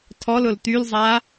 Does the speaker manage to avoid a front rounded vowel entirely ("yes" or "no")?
no